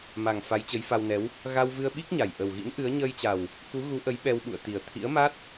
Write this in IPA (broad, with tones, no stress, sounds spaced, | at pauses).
m a˨˩ ŋ f a˨˦ j t͡ɕ ə˨˦ j f a˧ w n ɛ˨˦ w | ɣ a˧ w v ɨ˧ ə̯ ɓ i˦˥ k̚ ɲ a˨˩ j ʔ ə˨˩ w ɣ ḭ˧˥ n ʔ ɨ˨˦ ə̯ ɲ əː˧ j t͡ɕ a˨˩ w | k u˨˦ ɣ u˨˦ ʔ ə˨˦ j ɓ ɛ˧ w ɓ ṵ˧˨ ə̯ t̪ i˨˩ ə̯ t̪ʰ ḭ˧˥ ə̯ m a˦˥ t̚